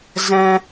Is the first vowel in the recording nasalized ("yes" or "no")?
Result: yes